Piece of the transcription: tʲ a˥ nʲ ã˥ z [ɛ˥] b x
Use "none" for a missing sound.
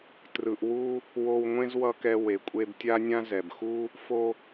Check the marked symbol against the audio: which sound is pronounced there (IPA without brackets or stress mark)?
ɛ˩